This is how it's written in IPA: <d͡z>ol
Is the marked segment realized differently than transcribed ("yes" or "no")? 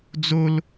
no